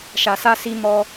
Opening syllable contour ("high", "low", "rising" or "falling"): low